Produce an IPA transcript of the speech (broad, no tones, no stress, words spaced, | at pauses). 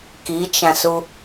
kit͡ʃãsu